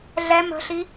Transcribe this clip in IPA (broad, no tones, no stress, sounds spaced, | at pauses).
ɮ ɛ m ə̤ ɬ i